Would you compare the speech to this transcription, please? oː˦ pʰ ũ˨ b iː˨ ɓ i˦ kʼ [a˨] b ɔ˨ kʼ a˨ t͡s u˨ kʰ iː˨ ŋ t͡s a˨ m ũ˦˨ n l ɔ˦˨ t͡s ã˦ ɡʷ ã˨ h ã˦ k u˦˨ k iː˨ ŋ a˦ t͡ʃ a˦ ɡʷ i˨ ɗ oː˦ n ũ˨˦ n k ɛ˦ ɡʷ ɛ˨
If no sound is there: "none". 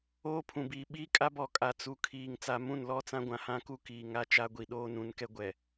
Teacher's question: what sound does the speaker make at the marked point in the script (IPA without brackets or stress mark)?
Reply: a˦